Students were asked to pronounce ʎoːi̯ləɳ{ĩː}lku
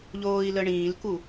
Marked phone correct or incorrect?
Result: correct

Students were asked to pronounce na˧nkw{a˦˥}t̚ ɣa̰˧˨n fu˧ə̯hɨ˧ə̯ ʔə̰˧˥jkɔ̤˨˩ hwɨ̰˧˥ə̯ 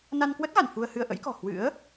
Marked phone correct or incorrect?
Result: incorrect: ə˦˥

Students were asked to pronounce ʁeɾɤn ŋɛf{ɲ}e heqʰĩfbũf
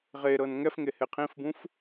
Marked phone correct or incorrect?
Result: incorrect: ŋ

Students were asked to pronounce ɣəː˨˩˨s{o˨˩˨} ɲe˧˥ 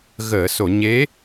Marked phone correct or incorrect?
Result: correct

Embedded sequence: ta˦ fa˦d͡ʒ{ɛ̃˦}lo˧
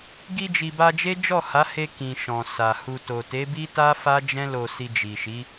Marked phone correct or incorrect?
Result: correct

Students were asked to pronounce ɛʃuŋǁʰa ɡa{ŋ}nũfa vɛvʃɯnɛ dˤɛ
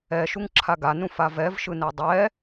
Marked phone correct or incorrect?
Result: incorrect: none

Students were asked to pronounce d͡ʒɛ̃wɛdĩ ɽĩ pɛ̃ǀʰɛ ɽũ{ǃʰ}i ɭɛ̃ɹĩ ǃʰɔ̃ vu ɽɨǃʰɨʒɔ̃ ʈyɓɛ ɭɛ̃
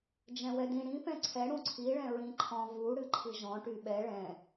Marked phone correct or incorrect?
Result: incorrect: ǀʰ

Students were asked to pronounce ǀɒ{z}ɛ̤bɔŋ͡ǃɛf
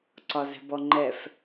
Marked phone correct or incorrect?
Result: correct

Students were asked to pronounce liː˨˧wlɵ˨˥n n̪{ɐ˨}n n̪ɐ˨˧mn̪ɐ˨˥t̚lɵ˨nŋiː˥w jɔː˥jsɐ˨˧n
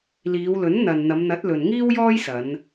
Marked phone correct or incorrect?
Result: correct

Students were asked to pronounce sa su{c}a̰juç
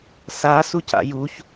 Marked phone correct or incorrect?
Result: correct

